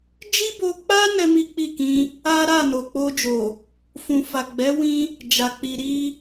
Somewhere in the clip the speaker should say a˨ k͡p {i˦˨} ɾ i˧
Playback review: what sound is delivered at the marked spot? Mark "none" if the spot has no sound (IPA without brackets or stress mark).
i˨